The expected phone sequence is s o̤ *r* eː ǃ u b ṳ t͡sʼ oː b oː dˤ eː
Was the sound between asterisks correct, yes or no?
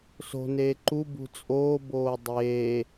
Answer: no